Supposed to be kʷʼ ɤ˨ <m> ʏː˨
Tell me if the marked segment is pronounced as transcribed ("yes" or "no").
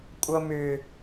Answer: yes